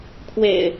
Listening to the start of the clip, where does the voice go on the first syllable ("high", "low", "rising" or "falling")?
low